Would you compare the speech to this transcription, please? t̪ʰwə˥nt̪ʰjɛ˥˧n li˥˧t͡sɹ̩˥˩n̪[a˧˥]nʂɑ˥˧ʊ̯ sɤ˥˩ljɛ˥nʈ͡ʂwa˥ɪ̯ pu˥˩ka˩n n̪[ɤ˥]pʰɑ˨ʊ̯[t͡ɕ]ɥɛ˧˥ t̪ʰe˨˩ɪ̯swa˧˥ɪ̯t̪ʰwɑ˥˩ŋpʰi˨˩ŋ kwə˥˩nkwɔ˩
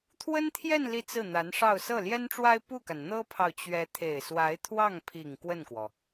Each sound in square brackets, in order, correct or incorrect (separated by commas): correct, correct, correct